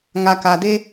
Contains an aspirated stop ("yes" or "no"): no